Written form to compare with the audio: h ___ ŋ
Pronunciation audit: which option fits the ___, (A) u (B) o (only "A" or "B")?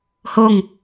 B